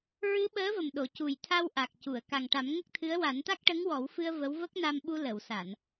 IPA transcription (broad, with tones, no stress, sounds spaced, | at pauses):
ɹ ɨ˧˥ ɓ əː˧˥ v ə˨˩ m ɗ o˨˩˨ c u˨˩ j t̪ʰ a˧ w ʔ a˨˩ k̚ c u˨˩˨ ə̯ k a˨˩ ŋ ʈ a˨˩˦ m ŋ ə˦˥ k̚ t̪ʰ ɨ˧˥ ə̯ w a˨˩˦ n t̪ a˦˥ k̚ ʈ ə˧˥ ŋ w ɔ˨˩˦ w f ɨ˧ ə̯ v ə˧˥ w v ə˦˥ k̚ n a˧ m ɓ u˧ l ə˨˩˨ w s a˨˩˨ n